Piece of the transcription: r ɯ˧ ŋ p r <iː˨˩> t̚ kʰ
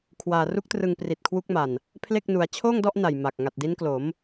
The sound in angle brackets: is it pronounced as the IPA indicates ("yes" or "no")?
no